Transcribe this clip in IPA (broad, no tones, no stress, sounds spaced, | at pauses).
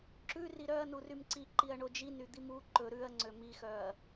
ǁ ʉ r i ɾ œ ɐ̯ n u r y m ǀ i ǃ i ɐ̯ ɳ o d͡ʒ i n y d̪ i m u ǃ ɵ ɾ ʉ ɐ̯ ŋ͡ǀ ø m i x œ ɐ̯